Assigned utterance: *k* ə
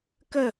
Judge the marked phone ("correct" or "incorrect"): correct